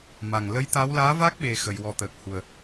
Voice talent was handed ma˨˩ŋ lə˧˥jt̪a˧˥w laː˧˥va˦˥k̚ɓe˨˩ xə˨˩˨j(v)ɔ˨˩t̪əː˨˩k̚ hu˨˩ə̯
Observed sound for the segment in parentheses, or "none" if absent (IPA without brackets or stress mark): w